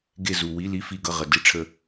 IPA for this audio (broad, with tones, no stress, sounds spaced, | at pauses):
ɡ e˦˨ z u˨ w i˧˥˧ l i˧˥˧ f i˦˨ ɡ ʌ˦˨ ʁ ə˨ d i˧˥˧ ʈ͡ʂʰ ə˦˨